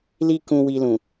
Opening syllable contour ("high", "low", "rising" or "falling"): high